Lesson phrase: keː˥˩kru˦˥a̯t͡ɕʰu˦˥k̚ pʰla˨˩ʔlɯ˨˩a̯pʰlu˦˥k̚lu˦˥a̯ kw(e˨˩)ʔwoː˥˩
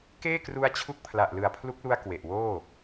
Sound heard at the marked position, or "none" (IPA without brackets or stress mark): e˨˩